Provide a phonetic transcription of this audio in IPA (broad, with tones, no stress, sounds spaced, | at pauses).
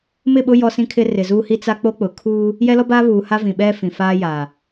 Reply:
m ɪ˦˨ ɓ ʊ˦ j ɔ˦ s ĩ˦ kʰ ɪ˦ r ɪ˨ z uː˦ h i˦ t͡s a˦ k͡p o˦ k͡p ʊ˨ kʰ uː˦ | j ɛ˦ l ɔ˦ b aː˦ β uː˨ h a˦ v ĩ˨ ɓ ɛ˦ f ĩ˨ f aː˦ j aː˨